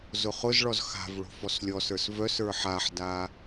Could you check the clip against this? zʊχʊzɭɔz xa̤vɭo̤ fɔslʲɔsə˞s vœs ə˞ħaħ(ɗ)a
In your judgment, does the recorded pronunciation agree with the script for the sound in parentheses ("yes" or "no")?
no